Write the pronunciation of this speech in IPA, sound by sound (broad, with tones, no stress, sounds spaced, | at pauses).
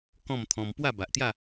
k ɔ̃˥˧ m t̪ʰ ɔ̃˧ m p w a˥˧ b a˨ ʔ t̪ j a˥˧